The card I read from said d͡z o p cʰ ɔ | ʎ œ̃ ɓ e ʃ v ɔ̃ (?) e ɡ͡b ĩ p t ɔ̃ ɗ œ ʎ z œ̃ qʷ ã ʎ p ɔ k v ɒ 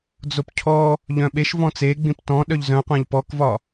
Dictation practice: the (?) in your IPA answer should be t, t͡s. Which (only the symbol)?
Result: t͡s